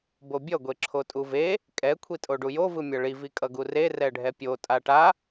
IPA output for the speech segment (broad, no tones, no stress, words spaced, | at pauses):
bobʲʌ ɡʷeǁʰotʼuve | kʼɛ kʷʰitʼoɖujo vɯmʲʌɭi vikʼʌɡure rɛɖʱɛpʲo tʼaʈa